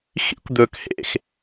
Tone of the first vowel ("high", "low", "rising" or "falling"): high